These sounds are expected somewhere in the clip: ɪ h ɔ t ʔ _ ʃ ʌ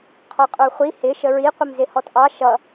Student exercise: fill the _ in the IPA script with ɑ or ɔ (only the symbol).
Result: ɑ